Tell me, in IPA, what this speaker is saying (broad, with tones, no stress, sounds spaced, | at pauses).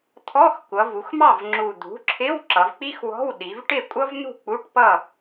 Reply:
t̪ʰ ɔ˧˥˧ x kʷ ʌ˩˧ v u˩˧ x m ɑ˥˨ v ŋ͡ǁ u˨˩ d̪ ṳ˩˥ ǁʰ ɪ˧˥˧ w ǁ ʌ˩˧ v k͡p i˥ x w ɔ̤˧˥˧ w ɗ i˩˧ v ʈ ɪ˥˨ kʷʼ ʌ˥ v n̪ ṳ˥˨ k͡p u˧˥˧ ʈ p ʌ˥˨